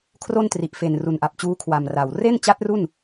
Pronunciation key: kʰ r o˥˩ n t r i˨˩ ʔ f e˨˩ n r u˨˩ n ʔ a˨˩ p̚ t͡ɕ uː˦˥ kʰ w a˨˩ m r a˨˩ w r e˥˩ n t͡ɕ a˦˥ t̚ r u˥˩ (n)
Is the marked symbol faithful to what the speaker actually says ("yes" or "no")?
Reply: yes